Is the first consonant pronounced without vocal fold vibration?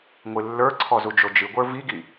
no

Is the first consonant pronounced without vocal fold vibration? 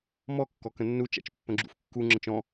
no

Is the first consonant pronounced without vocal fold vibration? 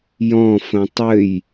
no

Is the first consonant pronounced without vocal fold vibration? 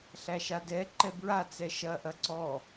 yes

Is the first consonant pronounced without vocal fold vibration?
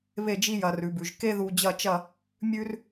no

